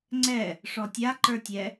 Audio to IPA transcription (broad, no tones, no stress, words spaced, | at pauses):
ŋ͡ǀɛ | ʂɔtʲa ǃə˞tʲɛ